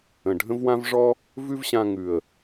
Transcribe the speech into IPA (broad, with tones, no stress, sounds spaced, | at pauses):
ə̃˨ ɖʱ ə̃˦ v w ã˦ v ʐ ɔ˦ | v ʉ˦ v ɕ ã˧ ŋ ʉ˨ ə̯